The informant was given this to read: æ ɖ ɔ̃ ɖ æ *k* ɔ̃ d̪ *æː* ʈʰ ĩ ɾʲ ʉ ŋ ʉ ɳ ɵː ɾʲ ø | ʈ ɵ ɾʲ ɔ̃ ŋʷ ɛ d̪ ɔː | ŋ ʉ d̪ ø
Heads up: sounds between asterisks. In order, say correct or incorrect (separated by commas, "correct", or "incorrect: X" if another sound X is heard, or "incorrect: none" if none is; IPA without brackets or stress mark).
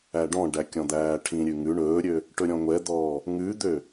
incorrect: kʲ, correct